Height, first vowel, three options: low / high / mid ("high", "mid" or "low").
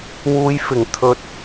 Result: high